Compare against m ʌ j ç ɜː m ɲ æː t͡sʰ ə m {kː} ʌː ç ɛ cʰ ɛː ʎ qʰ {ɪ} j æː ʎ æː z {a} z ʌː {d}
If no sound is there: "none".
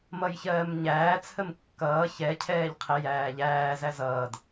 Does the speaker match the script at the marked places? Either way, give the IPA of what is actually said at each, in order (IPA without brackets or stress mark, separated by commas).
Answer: kː, ɪ, æ, d